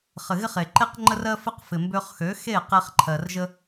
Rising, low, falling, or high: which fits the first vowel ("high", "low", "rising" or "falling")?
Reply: low